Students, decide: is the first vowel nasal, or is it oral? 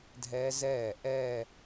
oral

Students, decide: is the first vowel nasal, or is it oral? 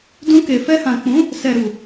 nasal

